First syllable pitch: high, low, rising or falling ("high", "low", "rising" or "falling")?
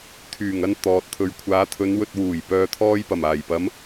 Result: low